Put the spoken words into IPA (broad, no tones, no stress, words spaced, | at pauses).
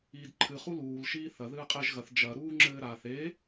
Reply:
iːdǃʰɨ χuluːl ʃiːθɐ ðɨːqʼeʒ ɣɐθ d͡ʒɐ ɾuːŋ͡ǁɘːɾa θe